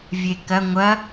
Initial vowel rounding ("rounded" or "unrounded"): unrounded